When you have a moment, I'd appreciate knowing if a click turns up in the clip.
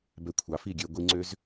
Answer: yes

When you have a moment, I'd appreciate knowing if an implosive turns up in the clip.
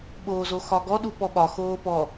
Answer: yes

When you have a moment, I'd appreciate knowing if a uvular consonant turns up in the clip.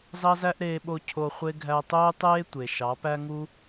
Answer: yes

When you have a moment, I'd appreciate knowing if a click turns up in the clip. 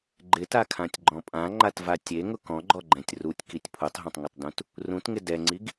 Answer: yes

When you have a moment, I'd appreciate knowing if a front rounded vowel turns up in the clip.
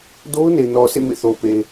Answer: no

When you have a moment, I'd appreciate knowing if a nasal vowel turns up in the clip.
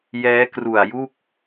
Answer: no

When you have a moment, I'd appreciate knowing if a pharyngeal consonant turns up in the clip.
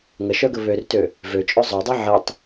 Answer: yes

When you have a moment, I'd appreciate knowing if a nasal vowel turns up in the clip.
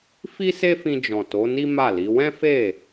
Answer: yes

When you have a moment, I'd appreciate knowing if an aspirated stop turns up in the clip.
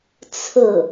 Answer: yes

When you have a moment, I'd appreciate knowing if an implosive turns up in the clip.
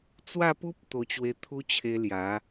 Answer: no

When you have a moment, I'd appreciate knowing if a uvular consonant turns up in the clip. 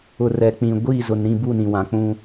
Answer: no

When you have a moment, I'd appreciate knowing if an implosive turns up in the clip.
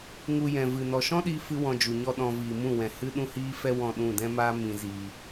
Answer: yes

